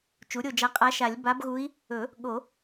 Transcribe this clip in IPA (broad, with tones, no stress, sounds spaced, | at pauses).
t͡ʃ u˩˥ ɾʲ o˦˨ d͡ʒ a˧˥ qʼ a˧˥ ʃ a˨˩˦ lʲ b a˧˥ b ɣ u˧˥ i̯ | ɵ˨˩˦ | ɠ o˨˩˦